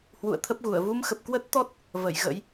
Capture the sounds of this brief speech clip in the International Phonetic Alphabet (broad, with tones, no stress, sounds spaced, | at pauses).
h w ṵ˧˨ ə̯ t̪ʰ ə˦˥ p̚ ɣ u˧˩ ə̯ v u˧ m x ə˨˩ p̚ k w ə˦˥ t̚ t̪ ɔ˦˥ t̚ | v ə˧˩ j ɣ ə̰˧˥ j